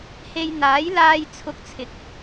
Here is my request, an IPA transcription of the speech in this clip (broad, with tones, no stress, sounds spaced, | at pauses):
h e˧ j n̪ aː˨˥ j l aː˧ j t͡sʰ ʊ˧ k̚ t͡sʰ ɪ˨ k̚